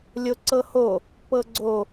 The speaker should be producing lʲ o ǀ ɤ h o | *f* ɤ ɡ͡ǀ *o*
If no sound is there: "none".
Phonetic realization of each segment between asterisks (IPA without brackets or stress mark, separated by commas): p, o